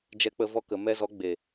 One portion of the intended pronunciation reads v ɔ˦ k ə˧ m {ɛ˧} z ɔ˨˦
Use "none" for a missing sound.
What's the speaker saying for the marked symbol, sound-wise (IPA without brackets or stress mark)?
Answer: ɛ˧